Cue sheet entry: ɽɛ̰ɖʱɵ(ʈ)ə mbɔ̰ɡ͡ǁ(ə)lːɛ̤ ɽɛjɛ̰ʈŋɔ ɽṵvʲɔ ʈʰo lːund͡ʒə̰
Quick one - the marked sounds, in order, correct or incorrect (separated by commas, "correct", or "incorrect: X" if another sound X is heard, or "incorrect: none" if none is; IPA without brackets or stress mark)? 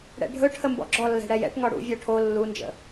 incorrect: ʈʰ, incorrect: ɔ